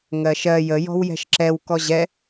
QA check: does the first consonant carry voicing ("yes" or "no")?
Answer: yes